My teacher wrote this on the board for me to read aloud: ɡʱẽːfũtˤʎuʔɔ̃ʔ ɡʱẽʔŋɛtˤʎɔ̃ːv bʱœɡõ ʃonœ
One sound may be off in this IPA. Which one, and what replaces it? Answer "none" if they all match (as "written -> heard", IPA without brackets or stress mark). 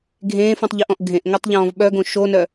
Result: bʱ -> ɓ